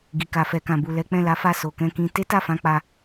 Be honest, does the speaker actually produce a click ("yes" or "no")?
no